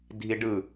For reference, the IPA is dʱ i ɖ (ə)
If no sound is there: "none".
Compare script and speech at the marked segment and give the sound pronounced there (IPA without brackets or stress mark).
ɯ